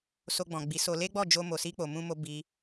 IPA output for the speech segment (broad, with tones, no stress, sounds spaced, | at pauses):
s o˧ ɡ͡b ɔ̃˨ ɡ͡b i˨˦ s o˧ l e˦ ɡ͡b ɔ˦˨ d͡ʒ o˧ m o˨ s i˧ k͡p o˨ m ũ˧ m o˧ b i˧